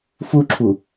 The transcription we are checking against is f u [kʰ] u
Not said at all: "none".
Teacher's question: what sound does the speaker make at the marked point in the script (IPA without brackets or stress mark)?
ǁʰ